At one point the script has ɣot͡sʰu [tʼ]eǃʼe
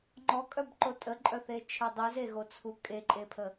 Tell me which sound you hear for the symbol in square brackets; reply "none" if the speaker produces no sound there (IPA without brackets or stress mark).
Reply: kʼ